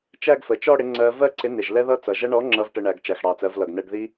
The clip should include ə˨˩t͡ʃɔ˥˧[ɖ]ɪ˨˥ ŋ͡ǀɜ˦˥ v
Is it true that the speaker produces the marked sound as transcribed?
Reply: no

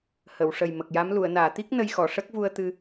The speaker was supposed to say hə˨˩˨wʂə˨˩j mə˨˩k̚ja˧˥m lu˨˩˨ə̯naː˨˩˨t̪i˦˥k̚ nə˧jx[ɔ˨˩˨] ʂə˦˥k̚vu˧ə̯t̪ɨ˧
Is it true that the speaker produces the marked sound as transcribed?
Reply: yes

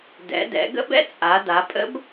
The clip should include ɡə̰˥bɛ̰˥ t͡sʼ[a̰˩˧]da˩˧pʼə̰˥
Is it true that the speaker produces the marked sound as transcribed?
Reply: no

